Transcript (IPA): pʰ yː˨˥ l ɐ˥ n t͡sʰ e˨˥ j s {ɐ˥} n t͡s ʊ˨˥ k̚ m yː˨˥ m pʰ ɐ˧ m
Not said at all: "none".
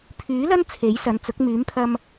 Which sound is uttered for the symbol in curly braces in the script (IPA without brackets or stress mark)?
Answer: ɐ˨˧